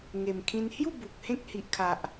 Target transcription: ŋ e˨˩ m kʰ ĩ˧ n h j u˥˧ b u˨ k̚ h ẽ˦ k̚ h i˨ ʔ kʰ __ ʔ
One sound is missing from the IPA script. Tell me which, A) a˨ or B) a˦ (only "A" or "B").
A